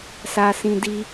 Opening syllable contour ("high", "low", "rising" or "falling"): low